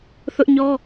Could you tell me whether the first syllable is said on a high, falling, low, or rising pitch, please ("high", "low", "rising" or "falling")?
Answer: high